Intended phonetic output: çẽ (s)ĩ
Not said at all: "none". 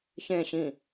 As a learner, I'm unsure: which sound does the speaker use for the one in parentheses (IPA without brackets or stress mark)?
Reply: ɕ